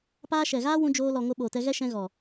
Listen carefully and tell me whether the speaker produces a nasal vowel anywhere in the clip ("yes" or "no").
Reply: yes